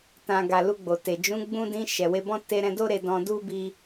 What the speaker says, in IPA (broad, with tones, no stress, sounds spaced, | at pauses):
t ã˨ ɡ a˨ l u˧ ɡ͡b o˨ t e˨ d͡ʒ ũ˨˦ ɡ͡b ũ˧ d ĩ˧ ʃ ɛ˨ w e˧ b ɔ̃˦ t e˧ ɾ ɛ̃˧ d o˦ ɾ e˧ d ɔ̃˧ d u˦ b i˧